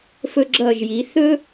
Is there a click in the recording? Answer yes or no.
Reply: yes